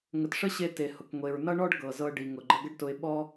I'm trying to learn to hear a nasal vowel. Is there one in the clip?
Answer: no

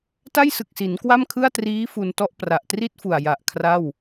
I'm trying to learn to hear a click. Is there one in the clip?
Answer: no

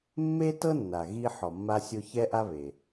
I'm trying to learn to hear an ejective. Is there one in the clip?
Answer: no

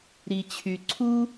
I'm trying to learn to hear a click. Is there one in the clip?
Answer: yes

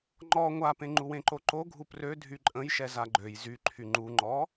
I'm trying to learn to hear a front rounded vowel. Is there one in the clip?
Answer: yes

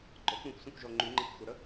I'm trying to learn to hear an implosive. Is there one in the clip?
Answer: no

